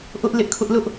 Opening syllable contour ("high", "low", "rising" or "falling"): high